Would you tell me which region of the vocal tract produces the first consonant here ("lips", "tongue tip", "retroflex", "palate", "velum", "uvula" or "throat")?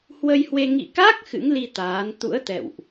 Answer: throat